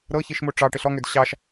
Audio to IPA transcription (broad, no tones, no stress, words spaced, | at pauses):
ɾɤçiʃmo ʈ͡ʂɑʈɪɬ ɔŋød ɕɑʃ